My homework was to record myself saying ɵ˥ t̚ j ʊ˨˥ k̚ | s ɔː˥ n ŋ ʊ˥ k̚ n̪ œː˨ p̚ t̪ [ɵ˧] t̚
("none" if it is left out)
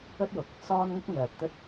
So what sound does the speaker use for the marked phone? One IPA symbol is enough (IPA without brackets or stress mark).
ɵ˥